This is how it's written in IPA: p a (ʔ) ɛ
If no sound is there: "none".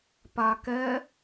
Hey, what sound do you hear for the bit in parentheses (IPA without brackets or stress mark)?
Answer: k